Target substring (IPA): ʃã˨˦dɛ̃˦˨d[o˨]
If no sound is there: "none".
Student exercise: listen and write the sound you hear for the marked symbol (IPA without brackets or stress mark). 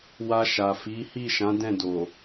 o˨